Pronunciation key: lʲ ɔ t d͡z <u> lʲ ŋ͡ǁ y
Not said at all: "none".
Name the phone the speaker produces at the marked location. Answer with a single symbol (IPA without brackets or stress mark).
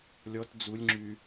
u